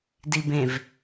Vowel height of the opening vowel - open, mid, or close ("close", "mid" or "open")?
close